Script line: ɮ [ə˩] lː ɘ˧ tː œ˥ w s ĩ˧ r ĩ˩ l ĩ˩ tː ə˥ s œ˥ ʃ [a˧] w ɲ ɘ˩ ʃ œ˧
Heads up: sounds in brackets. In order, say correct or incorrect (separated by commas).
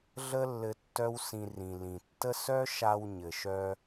incorrect, correct